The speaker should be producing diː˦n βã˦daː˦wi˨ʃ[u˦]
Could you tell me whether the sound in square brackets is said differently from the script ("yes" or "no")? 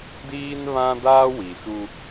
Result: no